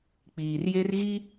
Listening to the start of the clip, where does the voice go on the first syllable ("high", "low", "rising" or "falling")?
low